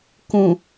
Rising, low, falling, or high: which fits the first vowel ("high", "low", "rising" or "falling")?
low